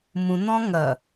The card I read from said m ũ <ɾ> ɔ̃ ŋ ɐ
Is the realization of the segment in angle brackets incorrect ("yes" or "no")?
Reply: yes